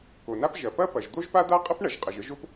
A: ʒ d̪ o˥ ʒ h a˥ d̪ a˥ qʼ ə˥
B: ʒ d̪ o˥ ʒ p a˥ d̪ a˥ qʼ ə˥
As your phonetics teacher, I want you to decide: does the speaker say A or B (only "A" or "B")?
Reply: B